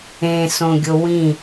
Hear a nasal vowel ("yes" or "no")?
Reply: yes